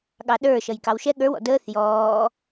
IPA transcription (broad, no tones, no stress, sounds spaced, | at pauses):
ɠ ɑ ɗ ə˞ ʃ ʌ j k ɑ w ʃ ɛ ɠ ə˞ w ɔ̰ d əː θ j ɔː